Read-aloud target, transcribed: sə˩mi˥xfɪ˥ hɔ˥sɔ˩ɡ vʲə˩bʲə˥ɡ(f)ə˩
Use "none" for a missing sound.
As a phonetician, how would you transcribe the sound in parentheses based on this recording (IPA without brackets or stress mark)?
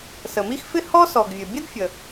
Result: fʲ